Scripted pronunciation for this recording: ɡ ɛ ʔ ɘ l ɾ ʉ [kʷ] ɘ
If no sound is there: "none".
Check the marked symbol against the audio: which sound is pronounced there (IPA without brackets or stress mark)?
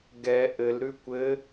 kʷ